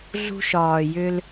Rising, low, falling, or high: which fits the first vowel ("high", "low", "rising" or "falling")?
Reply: high